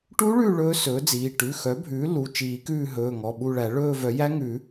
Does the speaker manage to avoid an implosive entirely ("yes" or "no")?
no